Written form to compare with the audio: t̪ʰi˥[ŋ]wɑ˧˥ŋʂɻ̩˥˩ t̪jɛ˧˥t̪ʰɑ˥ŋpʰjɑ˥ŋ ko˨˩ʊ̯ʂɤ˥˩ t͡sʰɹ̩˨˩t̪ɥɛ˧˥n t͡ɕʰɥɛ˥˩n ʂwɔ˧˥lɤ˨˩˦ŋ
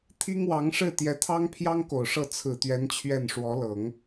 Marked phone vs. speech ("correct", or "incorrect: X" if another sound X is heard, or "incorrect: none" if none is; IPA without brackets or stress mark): correct